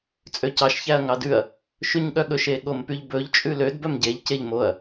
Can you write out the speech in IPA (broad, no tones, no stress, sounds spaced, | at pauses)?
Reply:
t͡sʼ ø c ɑ ʃ ç æ ɐ̯ ŋ ɑ d ʉ ɐ̯ | ʃ ʉ ɲ ɠ œ ɠ ɵ ʃ e ɠ o m p y ʎ b ɵ ʎ t͡ʃʼ ʉ l ø d b œ m ɟ e ʎ c e ʎ m o ɐ̯